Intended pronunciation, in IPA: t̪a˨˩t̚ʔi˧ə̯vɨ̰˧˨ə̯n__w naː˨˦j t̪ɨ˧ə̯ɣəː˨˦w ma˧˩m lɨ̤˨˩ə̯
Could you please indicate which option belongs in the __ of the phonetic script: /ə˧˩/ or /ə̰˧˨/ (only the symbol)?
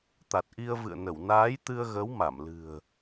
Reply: ə˧˩